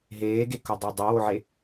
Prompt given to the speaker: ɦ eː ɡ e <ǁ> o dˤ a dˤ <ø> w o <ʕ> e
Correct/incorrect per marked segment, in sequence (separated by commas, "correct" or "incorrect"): incorrect, incorrect, correct